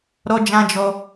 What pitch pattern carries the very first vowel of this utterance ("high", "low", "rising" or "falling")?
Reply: high